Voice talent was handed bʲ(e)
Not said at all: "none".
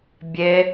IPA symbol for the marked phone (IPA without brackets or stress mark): e